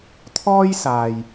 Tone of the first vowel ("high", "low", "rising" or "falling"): high